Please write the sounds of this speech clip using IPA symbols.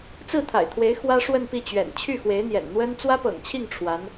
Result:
t͡sɹ̩˥˩t̪ʰa̰˨˩ɪ̯t̪ʰwe˧˥ɪ̯ xwä˥ ʂwə˥˧npi˥˩t͡ɕɥɛ̰˨˩n t͡ɕʰy˥˩xwe˧˥ɪ̯n̪jɛ̰˨˩n n̪wə˥n t͡swä˥pɤ̰˨˩ŋt͡ɕʰi˥˩ŋ ʈ͡ʂʰwa˧˥n

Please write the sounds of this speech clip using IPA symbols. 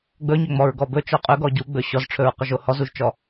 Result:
ɡ͡bɵɲɵŋ͡mɔɹ ɡɔbɵ t͡ʃɔqʼɵɡɔ ɟuɡ͡bɵ ɕɔzʈ͡ʂʰɵɹqɵʒo hɔzuʒt͡ʃɔ

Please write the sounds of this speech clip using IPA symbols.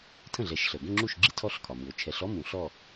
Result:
tʰə̃˥˩ɮɛ˨˩˦ʃɬə˩o̯ ɡə̃˥˧ŋ͡ǁu˥˩ʃɡ͡ǁi˥˧ tʰɔ˥˧ɬkʰɒ˩mu˩o̯ t͡ʃʰɛ˨˩˦ɬɔ˥ mũ˨˩˦ɬɔ˥˧

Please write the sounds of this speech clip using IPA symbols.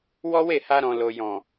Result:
wɔ˦we˦˨ha˧ɾɔ̃˨ lo˨jɔ̃˨

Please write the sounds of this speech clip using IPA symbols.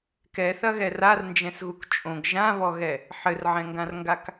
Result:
kɛθɐɣɛ rarnd͡ʒɛ̃sɣuk t͡ʃʼõɡ ʒãβɔɣɛ | ħɘrʕɛ̃ŋɡãrŋɡak

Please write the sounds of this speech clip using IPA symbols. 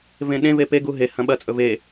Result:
vẽɗẽve peɡu ɦehɐ̃ ɓɐt͡sʼɵ ve

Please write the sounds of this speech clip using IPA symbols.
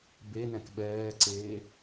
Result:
benɛ̃k ɓɛːǀeː

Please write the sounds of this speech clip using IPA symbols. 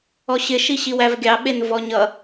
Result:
ɔɕɪ ʃiɕiwævɡʲɑ ɓenvɔɲʌ

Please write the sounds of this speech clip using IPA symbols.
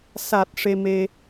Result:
sa˨˩t̚ ʂe˧me˧

